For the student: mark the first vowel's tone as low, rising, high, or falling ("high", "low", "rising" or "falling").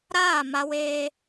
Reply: falling